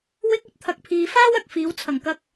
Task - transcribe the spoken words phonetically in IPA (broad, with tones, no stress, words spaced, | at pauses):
wɪ˥k̚ɵ˥t̚ t̪ʰɐ˨˥k̚pʰiː˨ faː˥wɐ˨k̚ fiː˨˥wt͡sʰɐ˨˩ŋkɐ˥k̚